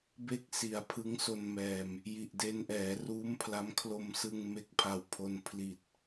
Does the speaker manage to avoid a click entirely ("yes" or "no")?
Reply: yes